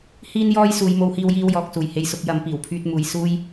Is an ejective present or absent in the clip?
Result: absent